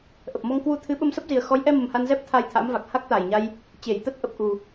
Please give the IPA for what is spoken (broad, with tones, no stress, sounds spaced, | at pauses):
ʔ ə˨˩ p̚ m ɔ˧ ŋ k w u˧ t̪ʰ ɨ˨˦ ɓ ə˧ m s ə˦˥ p̚ z i˨˩ ə̯ x ɔ˨˦ j ʔ ɛ˧ m ə˨˩ m h a˧ n z ɛ˦˥ p̚ t̪ʰ a˧ j t̪ʰ a̰ː˧˥ m v a˨˩ k̚ h a˦˥ k̚ t̪ a˨˩ j ɲ a˧ j | t͡ɕ e˧˩ j t̪ ə˦˥ t̚ ʔ ə˨˩ p̚ ʔ u˨˩